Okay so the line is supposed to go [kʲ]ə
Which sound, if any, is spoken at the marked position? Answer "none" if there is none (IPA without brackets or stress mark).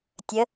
tʲ